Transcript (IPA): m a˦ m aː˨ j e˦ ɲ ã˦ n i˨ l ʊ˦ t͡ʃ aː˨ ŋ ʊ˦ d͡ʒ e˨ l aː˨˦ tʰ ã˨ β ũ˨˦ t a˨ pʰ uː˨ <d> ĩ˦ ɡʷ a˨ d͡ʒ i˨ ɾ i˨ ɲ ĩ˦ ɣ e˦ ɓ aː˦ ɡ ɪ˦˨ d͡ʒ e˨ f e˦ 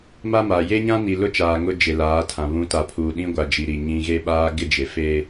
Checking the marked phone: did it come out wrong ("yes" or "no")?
yes